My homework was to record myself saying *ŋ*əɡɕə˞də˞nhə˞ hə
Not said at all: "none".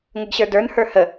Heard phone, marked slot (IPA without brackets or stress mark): ŋ